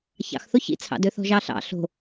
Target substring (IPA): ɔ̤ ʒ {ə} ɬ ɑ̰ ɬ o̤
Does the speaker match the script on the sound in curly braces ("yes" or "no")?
no